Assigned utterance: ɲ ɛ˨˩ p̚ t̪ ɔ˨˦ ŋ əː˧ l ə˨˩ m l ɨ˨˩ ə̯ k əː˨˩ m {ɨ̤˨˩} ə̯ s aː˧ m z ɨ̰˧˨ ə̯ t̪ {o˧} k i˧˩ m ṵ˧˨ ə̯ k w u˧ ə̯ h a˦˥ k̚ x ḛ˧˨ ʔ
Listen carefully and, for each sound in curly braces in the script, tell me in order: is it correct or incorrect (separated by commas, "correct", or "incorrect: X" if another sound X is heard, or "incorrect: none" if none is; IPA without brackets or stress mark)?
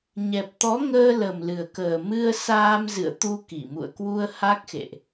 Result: incorrect: ɨ˧, incorrect: u˧